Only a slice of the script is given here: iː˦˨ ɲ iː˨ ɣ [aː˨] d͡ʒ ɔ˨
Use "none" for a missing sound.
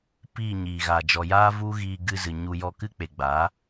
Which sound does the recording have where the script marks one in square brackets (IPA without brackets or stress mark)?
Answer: aː˨